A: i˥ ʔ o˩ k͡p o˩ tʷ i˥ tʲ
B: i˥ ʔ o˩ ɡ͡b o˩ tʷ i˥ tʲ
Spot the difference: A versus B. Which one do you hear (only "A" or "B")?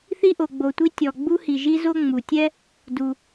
B